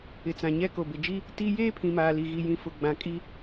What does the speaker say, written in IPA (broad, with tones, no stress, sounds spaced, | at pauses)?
ɪ˨ t͡s ã˨ ɲ ɛ˦ k o˨ b ɪ˨ d͡ʒ i˦ | t i˦ j eː˦ pʰ ĩ˨ m aː˨ l i˨ ɣ i˨ j ĩ˨ f ʊ˨ ɡ͡b ã˨ kʼ i˦